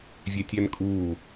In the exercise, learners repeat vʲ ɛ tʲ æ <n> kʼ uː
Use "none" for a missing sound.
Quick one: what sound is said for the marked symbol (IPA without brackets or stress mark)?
n